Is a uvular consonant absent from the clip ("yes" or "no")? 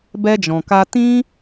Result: yes